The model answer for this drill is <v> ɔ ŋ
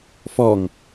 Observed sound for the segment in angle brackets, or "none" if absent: f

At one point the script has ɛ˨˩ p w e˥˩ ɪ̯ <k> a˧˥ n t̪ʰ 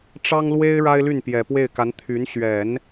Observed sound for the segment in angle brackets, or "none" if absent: k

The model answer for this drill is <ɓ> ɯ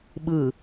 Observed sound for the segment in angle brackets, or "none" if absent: ɓ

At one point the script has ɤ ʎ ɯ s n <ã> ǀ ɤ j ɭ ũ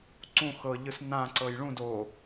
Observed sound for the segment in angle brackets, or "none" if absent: ã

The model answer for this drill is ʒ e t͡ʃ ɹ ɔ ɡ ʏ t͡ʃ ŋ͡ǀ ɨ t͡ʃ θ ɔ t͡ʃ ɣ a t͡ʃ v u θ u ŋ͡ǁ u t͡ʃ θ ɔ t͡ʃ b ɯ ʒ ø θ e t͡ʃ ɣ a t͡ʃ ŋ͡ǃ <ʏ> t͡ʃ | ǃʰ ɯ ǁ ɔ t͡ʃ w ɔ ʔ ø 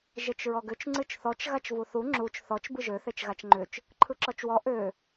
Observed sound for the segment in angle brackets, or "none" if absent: ʏ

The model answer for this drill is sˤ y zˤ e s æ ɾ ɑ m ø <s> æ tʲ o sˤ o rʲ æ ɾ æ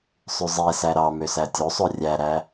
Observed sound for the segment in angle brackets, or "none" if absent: s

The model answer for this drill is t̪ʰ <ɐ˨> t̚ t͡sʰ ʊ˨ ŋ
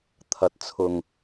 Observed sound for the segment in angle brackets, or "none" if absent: ɐ˨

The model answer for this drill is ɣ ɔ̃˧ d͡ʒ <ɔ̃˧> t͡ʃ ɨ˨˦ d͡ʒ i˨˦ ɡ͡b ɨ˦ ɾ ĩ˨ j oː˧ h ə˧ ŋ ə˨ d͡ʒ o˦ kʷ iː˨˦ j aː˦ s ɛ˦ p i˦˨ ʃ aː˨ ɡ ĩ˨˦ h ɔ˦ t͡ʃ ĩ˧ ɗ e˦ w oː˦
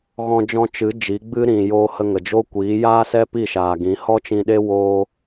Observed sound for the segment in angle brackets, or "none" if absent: ɔ̃˧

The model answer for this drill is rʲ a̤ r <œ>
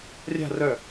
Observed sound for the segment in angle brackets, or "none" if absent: œ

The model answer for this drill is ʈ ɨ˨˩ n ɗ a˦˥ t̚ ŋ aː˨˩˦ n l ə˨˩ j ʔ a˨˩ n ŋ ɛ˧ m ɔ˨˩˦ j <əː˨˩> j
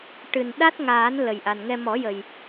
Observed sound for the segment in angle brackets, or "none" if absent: ə˨˩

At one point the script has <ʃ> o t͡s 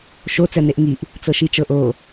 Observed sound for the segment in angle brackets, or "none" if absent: ʃ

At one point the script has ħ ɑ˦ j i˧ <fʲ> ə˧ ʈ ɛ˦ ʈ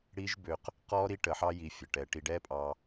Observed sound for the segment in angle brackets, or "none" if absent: fʲ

